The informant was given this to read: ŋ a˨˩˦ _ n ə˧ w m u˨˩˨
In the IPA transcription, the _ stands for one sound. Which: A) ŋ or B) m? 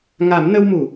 B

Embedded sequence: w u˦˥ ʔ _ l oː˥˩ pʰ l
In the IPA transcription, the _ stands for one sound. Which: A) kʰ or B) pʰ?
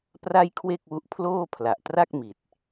B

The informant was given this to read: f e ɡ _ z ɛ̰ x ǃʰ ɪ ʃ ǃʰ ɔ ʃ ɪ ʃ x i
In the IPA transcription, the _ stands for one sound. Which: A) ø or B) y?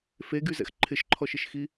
B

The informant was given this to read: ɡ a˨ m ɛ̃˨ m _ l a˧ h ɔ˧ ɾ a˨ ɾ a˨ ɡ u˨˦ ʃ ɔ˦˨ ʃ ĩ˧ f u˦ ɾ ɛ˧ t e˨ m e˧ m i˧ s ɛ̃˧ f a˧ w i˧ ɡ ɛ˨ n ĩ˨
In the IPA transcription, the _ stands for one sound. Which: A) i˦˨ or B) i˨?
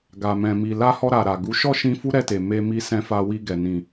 B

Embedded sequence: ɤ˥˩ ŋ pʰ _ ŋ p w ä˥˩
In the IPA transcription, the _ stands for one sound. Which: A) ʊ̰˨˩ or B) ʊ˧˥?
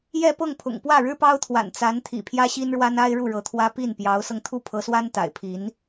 A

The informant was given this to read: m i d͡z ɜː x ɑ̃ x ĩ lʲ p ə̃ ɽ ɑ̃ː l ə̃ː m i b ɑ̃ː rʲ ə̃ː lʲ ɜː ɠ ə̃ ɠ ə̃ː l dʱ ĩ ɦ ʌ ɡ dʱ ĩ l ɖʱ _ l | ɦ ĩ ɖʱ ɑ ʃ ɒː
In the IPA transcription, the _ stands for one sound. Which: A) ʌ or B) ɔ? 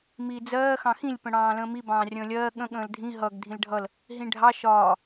A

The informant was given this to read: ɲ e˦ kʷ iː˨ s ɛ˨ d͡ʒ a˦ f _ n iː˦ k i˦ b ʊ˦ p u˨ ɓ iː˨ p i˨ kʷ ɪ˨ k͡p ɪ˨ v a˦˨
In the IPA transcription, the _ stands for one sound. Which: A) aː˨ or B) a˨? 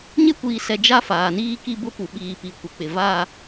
A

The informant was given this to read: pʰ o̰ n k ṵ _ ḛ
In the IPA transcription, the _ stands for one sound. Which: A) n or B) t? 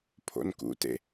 B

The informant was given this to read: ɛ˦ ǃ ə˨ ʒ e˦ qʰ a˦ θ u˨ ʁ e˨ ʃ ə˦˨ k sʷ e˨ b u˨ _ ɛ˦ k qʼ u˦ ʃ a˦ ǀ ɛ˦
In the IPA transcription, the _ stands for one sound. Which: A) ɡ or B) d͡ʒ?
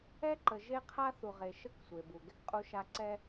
A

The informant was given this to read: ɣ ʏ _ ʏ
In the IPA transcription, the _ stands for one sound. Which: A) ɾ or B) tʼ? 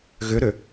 A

